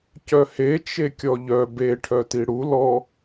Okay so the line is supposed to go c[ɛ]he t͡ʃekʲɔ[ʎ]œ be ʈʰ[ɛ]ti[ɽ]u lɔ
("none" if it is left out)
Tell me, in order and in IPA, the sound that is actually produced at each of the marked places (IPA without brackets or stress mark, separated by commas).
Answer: œ, ʎ, œ, ɽ